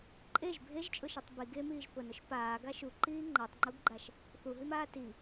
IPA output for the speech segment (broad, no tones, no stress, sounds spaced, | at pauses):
ǃʼ e ʒ bʱ e ʒ t͡ʃʼ ʊ ʃ e tˤ b i ɡ e m iː ʒ p ʊ n ʊ ʃ p aː ɡ a ʃ u ǃ iː ŋ͡ǃ a tˤ ŋ͡ǃ u ɡ ɡ͡ǃ a ʃ | θ u ɦ i m aː t i